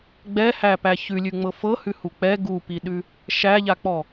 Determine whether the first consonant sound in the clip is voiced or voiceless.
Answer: voiced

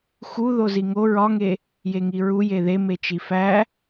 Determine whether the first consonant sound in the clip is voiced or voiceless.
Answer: voiceless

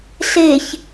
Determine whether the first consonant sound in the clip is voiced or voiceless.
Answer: voiceless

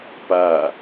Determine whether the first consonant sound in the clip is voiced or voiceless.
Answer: voiceless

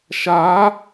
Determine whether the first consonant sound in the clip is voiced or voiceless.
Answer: voiceless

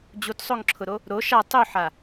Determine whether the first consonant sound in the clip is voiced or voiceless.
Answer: voiced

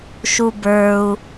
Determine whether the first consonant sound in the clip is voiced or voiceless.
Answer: voiceless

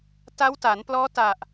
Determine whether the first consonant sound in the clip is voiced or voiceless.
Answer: voiceless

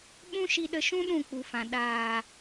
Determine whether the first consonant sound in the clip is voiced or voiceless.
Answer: voiced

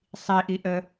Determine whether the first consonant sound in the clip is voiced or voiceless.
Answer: voiceless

